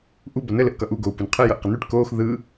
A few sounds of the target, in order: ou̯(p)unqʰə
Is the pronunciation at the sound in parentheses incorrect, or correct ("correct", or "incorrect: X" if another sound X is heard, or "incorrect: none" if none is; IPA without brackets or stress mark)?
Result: correct